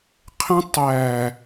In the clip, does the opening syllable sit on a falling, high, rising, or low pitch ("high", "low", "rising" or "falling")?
high